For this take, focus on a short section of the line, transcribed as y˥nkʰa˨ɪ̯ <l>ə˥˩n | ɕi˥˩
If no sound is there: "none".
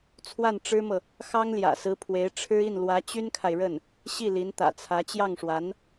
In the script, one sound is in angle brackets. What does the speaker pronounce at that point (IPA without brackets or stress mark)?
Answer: ɻ